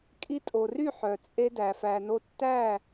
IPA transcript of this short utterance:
kʼ i˧ tʼ o˨ r y˦˨ ħ œ˨ t͡sʼ e˦ d æ˨ f æ˨ n o˧ tː æ˦˨

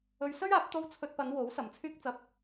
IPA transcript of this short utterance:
ɵ˧ ɥ s ɵ˥ ɥ aː˨˥ p̚ t̪ o˥ w t͡sʰ ɵ˧ t̚ p ɐ˨˧ n w o˨˥ w s ɐ˨˧ m t͡sʰ yː˥ k̚ t͡s ɐ˥ p̚

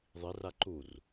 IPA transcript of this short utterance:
ðˤ i r a ǃ u r

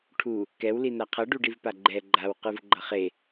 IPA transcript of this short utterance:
ʈʰ u | k ɛ w l i n a qʰ ʌ ɖ u ɖ i v p a ɡ͡ǃ ɛ ɡ͡ǃ a w q ɯ v ɡ͡ǃ ʌ χ e

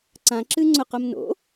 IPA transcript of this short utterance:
ǀ ã ǁ ɨ ŋ͡ǀ ʊ q ʊ m n o̰

